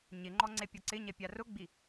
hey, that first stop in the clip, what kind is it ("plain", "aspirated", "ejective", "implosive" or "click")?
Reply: click